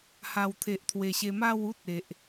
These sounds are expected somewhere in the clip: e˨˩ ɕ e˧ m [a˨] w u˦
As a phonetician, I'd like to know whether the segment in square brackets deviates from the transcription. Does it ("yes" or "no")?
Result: yes